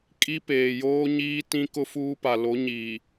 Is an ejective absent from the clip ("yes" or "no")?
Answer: no